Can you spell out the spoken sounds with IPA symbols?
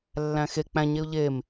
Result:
lː æ̃ x e k͡p æ̃ ɲ e ʊ̯ ʎ e m

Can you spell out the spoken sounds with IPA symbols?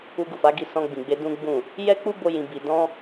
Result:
u˧ ɡ u˨ f a˨˦ ɡ i˧ s ɔ̃˧ ɡ͡b ĩ˨ ɡ͡b e˧ d ũ˦ ɡ͡b ũ˦˨ | j ɛ˦ k͡p u˦ b o˦ j ĩ˧ b i˧ d ɔ̃˦

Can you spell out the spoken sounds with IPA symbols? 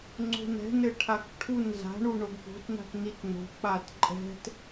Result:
ŋ͡ǀ o̤ n ɛ̤ n ɘ ʈʰ a k ʈʰ u n z a̤ ɳ u ɳ o ɡ p o̤ t n a̤ t n i t n o̤ k͡p a t ǃʼ ɛ̤ t

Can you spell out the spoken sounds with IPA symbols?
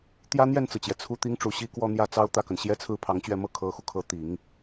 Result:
t̪ j ä˥ n̪ j ɛ˥˩ n t͡s ɹ̩˩ t͡ɕ j ɛ˩ t͡sʰ u˥˩ t̪ i˥ ŋ ʈ͡ʂ u˧˥ ɕ i˥ k w ɔ˥˧ n̪ j ä˥˩ t͡s ɑ˥ ʊ̯ t̪ ä˥˩ k ə˩ n ɕ j ɛ˥ t͡sʰ ɹ̩˥ pʰ ɑ˧˥ ŋ t͡ɕ ɥ ɛ˥˩ m ɤ˥ kʰ ɤ˧˥ x u˧ kʰ ɤ˧˥ t̪ i˨˩˦ ŋ

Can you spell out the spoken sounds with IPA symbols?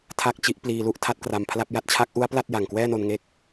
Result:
tʰ a˥˩ k̚ t͡ɕ i˦˥ ʔ p l iː˧ l u˥˩ ʔ tʰ a˥˩ t̚ k r a˧ m pʰ l a˥˩ p̚ j a˥˩ t̚ t͡ɕʰ a˦˥ k̚ ʔ u˦˥ a̯ p l a˥˩ t̚ j a˨˩ ŋ k w ɛː˥˩ n o˧ n ŋ e˦˥ k̚

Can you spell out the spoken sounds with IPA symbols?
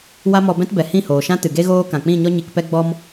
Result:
w a˦ m ɔ˧ b ɛ̃˦ t b ɛ˨ h ĩ˦˨ h oː˨ ʃ ã˦ t ɨ˨ ɡ e˦ ɣ oː˦ k ã˨ k͡p ĩ˦˨ ɲ ɔ˦ ɲ i˧ k p ɛ˦ ɡ͡b ɔ˦ m

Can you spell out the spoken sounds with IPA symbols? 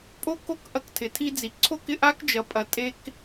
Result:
pʼ o˦ k o˦ k ʔ ɐ˧ k tʰ ɪ˨ tʰ i˧ d͡z i˨ ǀʰ o˦ k ɪ˧ ʔ a˦ k d͡ʒ ɐ˨ pʼ ɐ˨ tʼ e˧ k

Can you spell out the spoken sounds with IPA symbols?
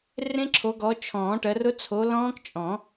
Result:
r ẽ˦˥ ǁʰ o˨˦ ɡ ɔ˨˦ t͡ʃʰ ɔ̃ː˨˩˦ ʈ ɜ˨˦ r ʊ˦˥ t͡sʰ o˨˦ l ɔ̃ː˦˥ k t͡ʃʼ ɔ̃˨˩˦

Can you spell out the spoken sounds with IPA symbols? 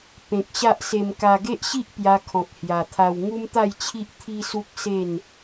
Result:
p ẽ˨ k̚ ɕ a˦ ʔ s e˧ m k a˧ ɡ e˦ ʔ ɕ i˦ ʔ p j a˧ kʰ ɔ̃˨ k̚ h j a˨˩ t̪ʰ a˧ w ŋ u˦ m t̪ a˥˧ j t͡ɕʰ i˦ ʔ t̪ʰ i˦ s u˦ k̚ s e˥˧ n

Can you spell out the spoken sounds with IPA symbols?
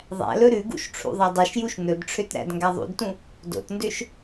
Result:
ðˤ æ̰ l ɵ ɾ ʉ ɡ ṵ ʃ ʈ͡ʂʰ ṵ ðˤ æ dˤ ʉ ʃ j u ʃ n ɵ d ʈ͡ʂʰ ø t ɾ æ̰ d ŋ ɡ æ ðˤ ṵ d t ũ | d o̰ t n d ø ʃ

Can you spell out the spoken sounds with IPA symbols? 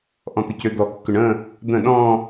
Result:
ʔ ɔ̃ t̪ ʏ c ø d̪ ɔ kː ʏ ɳ ə̃ | d̪ ə̃ ɗ ɔ̃

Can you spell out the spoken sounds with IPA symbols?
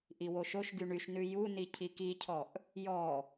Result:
ʔ i w o ʃ o ʃ ɡ y ɳ y ʃ n ʉ j u n i cʰ i k i cʰ ɔ ʔ | j ɔ

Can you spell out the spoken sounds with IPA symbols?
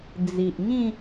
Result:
d͡z i˨ ʔ ŋ ĩ˥˧

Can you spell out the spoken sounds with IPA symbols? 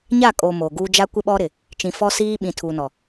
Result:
ɲ a˦˨ kʼ o˨ m o˨ ɡ uː˦ d͡ʒ a˦ kʷ ɪ˦ ɓ ɔ˦ ɾ ɪ˨ | t͡ʃ ĩ˨ f ɔ˦ s iː˦ ɓ ĩ˨ tʰ uː˨ n ɔ˨

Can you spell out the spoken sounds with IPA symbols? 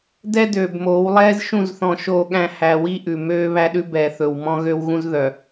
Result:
d ɛ˦ d øː˨ b m oː˨˦ w lˠ ɛː˦ z ʃ ũ˦˨ z θ ɔ̃˨ ʃ oː˨ ɠ æ̃˨ h æ˨ w i˦ ʔ ʉ˨ m øː˦ β æ˦ ɗ ʉ˦ b ɛː˨ θ ɵ˨ w m ɔ̃˦ ɣ ø˦ w ɣ ũ˦ z ð œ˨

